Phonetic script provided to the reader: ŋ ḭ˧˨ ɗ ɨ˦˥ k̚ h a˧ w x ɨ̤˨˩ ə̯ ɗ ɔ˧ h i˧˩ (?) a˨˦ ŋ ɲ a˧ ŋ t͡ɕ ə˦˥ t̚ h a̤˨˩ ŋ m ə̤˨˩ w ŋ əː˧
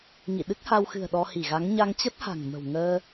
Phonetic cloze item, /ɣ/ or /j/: ɣ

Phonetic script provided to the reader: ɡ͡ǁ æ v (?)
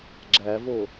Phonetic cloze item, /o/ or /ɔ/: o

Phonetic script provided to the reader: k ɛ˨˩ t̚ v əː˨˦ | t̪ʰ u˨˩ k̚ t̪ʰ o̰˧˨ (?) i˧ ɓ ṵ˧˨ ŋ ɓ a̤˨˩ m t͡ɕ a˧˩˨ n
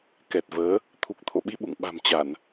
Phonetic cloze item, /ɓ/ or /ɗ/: ɓ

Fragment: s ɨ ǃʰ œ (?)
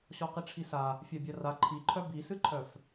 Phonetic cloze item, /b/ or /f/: f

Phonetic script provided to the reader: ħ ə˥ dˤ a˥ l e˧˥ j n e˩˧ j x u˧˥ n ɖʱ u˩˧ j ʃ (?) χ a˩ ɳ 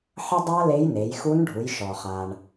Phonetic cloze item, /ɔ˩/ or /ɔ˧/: ɔ˩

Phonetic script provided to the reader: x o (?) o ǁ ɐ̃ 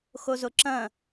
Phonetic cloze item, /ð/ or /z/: z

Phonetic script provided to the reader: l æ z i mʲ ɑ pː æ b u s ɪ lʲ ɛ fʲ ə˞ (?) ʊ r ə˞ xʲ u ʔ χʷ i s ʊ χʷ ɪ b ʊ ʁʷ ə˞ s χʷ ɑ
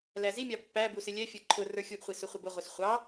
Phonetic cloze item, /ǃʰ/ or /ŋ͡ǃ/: ǃʰ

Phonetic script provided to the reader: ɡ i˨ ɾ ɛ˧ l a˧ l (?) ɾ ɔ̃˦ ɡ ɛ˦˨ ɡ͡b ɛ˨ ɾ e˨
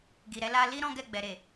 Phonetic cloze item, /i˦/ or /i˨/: i˦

